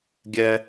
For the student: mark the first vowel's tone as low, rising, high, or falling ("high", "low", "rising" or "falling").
high